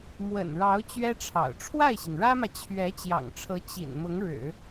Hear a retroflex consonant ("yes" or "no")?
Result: yes